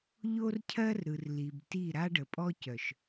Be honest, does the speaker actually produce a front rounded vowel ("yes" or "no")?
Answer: yes